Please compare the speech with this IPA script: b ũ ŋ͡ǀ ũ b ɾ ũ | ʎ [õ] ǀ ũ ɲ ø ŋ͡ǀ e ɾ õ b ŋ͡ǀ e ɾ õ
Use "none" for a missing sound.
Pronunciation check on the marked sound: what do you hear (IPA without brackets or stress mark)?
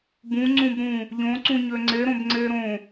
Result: õ